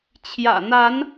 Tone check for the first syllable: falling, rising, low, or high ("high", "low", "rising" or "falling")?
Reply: low